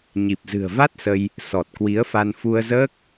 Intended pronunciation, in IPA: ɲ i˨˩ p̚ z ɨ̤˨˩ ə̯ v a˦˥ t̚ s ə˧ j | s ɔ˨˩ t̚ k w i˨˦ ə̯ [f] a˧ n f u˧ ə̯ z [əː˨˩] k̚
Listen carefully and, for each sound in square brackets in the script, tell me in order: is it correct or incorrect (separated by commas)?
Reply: correct, incorrect